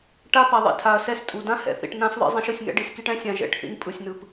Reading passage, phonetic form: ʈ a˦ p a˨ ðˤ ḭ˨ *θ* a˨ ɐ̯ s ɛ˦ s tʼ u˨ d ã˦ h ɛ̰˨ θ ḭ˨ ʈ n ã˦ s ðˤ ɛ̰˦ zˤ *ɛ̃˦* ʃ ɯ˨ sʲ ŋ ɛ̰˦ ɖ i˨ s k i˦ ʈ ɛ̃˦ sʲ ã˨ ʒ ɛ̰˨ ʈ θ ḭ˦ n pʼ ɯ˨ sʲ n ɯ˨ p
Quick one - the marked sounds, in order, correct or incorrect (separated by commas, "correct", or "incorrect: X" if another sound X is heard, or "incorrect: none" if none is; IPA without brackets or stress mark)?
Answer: incorrect: tʰ, correct